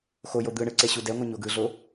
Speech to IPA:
x o j o d̪ ɯ ɳ ɯ ǀ e ɕ u d ɛ ŋʷ ʌ ɲ o ɡ ɯ ɮ o

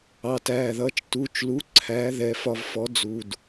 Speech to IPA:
ɑ˩˧˩ t æː˩˧˩ ð ʌː˩˥ t͡ʃ t u˩˧˩ t͡ʃ l u˩˥ ǀʰ æː˩˥ ð ɛ˩˧˩ f ɒ˧ v f ɔ˩˥ d͡z u˩˧˩ d

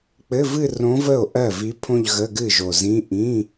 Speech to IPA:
k͡p ɘ˧˥˧ v ɨ˥˧ r õ˧˥ v ə˥˩ o̯ ʔ ɜ˥˩ v i˧˥ pʰ õ˥˧ ʎ ɣ ə˧˥˧ ɡ ɨ˥˩ ʒ o˨˩ z ĩ˧˥˧ ʔ ĩ˧˥˧

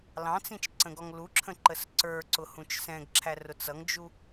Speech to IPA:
l ɑ̃ t͡s ĩ t͡ʃ ǀ ə̃ ɡ ɔ ŋ l u ǁʰ ə̃ ǃ ə s ǀ ə˞ ǀ ʊ h ũ t͡ʃ s ɛ̃ ɡ ǁʰ æ r ʊ t͡s ʌ ŋ d͡ʒ u

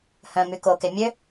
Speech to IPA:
h œ̃ m y k o k e mʲ ø

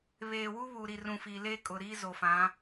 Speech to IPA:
β eː˨ w u˦ β uː˨ ɾ i˨ r ũ˨ f iː˨ l eː˦ kʼ ʊ˨ ɾ iː˦ z o˨ f ã˨˦

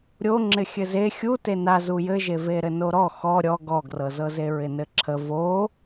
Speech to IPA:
ɾʲ o ŋ͡ǁ ɪ xʲ ɘ z e xʲ u t e n a z u j ɘ ʒ e v e ɾ ɘ n o ɾ ɔ x ɔ ɾʲ ɔ ɡ ɔ ɡ r ɤ z ɤ z e ɹ ɪ n ɘ ǁʰ ə v o

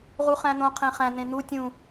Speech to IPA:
ʁ u χ æ̃ n̪ õ qʰ ẽ χ æ̃ n̪ ẽ n̪ u tʲ ũ

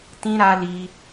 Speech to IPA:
t ĩ˦ ɾ a˦ l i˦

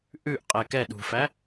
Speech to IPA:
ʔ ʉ ʔ qʼ ɛ k ɛ ɗ ṳ f æ

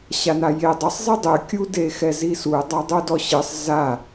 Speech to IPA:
ɕ a n a j e dˤ ɘ sˤ zˤ e dˤ ɨ kʲ u d e x ɛ z i s u dˤ a dˤ u d ɔ ɕ ɨ sˤ z a

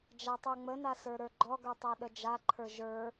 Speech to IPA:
d͡ʒ a tˤ ə˞ ŋ͡m ə n a s ə˞ ɾ ə˞ ɡ͡ǃ ɔ ɡ ə˞ tˤ a ɗ ə d͡ʒ a ǃʰ ə˞ ʒ ə˞

